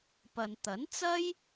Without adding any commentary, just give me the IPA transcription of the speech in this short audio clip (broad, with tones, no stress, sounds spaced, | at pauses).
p ɐ˨ n t̪ ɐ˨˥ n t͡s ɐ˥ j